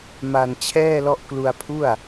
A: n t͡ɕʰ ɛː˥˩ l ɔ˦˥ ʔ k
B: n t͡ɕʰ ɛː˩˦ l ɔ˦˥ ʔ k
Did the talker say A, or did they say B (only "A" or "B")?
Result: A